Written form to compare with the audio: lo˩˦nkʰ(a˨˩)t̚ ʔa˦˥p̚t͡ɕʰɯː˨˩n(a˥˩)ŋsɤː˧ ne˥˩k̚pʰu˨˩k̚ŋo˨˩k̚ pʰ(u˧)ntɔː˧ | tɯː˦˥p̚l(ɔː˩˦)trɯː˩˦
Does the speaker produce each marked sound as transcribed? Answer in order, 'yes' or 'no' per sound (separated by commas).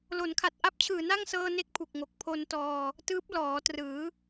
yes, yes, no, yes